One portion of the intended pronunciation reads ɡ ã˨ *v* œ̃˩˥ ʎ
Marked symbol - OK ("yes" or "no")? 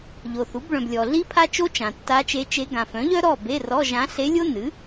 no